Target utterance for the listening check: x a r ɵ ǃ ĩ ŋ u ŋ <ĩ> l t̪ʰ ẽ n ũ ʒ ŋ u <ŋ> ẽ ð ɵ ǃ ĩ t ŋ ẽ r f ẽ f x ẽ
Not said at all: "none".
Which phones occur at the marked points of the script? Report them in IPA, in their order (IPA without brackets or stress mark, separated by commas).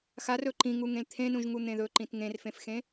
ẽ, n̪